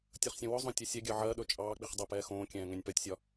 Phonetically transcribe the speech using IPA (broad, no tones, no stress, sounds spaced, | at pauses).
tʲ ɵ χ sʲ õ w ɵ zˤ õ tʲ e sʲ ɛ ɡʲ ɜ ʕ ɜ ɗ ɵ t͡ʃʼ ɑː k͡p i χ dˤ ɜ p ɛː x õː kʲ ɛ̃ː ŋ ɛ̃ nʲ p ɜ tʲ sʲ ɒ